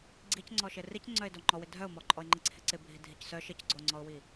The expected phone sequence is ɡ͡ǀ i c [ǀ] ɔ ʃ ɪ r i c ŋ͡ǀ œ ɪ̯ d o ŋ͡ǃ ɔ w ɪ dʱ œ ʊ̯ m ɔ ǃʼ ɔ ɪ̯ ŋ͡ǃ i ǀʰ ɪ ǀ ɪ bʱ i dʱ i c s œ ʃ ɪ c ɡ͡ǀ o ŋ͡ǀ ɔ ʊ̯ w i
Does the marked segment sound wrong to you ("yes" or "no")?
yes